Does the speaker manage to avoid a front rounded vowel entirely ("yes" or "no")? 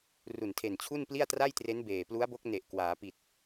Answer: yes